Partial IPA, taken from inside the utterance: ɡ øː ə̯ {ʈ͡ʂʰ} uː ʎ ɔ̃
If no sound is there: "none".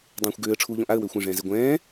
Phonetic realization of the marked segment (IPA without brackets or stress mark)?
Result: ʈ͡ʂʰ